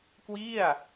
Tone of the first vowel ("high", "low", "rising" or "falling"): falling